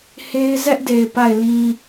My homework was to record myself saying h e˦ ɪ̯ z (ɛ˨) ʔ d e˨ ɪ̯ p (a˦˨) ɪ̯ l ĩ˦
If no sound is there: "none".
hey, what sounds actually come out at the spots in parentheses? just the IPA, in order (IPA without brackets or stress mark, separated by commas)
ɛ˦, a˦˨